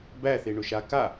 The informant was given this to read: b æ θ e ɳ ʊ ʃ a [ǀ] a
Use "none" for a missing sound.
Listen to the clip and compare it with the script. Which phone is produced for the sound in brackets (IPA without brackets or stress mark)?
k